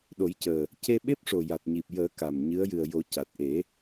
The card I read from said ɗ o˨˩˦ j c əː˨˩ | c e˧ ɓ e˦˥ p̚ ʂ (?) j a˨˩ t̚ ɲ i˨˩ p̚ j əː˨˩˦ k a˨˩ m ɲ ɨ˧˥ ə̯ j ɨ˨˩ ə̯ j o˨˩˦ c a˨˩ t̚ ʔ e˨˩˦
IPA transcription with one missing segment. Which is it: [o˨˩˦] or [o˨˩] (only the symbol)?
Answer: o˨˩